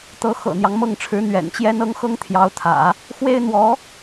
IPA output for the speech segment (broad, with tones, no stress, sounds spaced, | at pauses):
t̪ ɤ˧˥ x ɤ̰˨˩ n̪ j ɑ˦ ŋ m ɤ˥˩ ŋ ʈ͡ʂʰ ɻ̩˧˥ n̪ ɥ ɛ̰˨˩ n t͡ɕ j ɛ˥ n ɤ˥ ŋ x ɤ˥ ŋ t̪ʰ j ɑ˧˥ ʊ̯ t̪ʰ ä̰˨˩˦ | x w e˥ ɪ̯ n̪ w ɔ˧˥